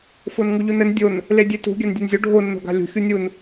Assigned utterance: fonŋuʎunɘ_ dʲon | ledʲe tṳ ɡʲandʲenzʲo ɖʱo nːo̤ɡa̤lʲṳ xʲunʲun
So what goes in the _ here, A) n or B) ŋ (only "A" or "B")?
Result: A